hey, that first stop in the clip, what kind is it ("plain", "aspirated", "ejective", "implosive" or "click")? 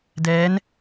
plain